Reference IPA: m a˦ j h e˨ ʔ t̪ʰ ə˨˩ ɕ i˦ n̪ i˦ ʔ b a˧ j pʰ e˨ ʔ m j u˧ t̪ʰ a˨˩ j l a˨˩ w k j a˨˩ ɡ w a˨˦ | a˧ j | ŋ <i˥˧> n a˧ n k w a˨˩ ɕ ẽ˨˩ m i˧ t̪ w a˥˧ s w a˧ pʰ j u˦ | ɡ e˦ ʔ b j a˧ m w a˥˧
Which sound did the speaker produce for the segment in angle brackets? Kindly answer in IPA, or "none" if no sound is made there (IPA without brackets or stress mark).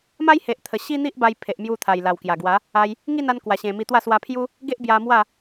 i˥˧